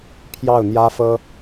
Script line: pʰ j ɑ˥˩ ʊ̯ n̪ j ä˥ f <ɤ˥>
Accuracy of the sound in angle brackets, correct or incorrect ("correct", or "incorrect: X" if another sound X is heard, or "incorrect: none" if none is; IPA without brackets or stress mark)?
correct